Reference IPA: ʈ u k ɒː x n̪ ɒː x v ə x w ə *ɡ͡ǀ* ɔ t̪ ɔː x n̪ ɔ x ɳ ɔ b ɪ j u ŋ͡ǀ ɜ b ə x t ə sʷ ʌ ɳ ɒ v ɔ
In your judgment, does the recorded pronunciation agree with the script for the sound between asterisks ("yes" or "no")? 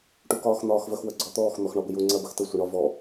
yes